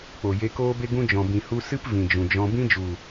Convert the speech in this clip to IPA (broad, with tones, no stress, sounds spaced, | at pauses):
k͡p o˨ j e˧ k oː˦ b e˦ ɡ ũ˦ d͡ʒ ɔ̃˨ b ĩ˨ h u˧ s ɨ˦ p v ĩ˨ d͡ʒ ũ˨ d͡ʒ ɔ̃˧ b ĩ˦ d͡ʒ u˨